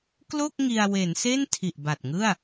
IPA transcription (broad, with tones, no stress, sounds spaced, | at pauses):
k l o˥˩ k̚ ŋ i˧ a̯ w e˩˦ n s e˥˩ n tʰ i˨˩ ʔ b a˨˩ t̚ ŋ ɯ˥˩ a̯